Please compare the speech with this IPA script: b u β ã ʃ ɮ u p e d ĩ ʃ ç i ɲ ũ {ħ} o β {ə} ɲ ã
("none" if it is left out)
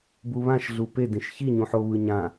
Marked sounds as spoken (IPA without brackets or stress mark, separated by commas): ħ, ɯ